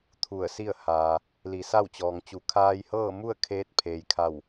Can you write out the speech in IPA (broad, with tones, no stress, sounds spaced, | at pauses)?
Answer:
t̪ʰ u˧˩ ə̯ s i˥˨ ə̯ h aː˩ | l i˩˧ s a˥˨ w t͡ɕ ɔː˩ ŋ t͡ɕ u˩˧ kʰ aː˧ j h ɤː˥˨ m u˥˨ ə̯ kʰ eː˧˥ t̚ pʰ eː˩ j kʰ a˧˩ w